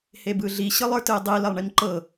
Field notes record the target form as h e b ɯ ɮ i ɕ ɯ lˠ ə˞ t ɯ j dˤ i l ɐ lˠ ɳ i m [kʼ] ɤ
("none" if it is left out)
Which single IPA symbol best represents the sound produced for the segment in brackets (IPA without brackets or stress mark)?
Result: ǃ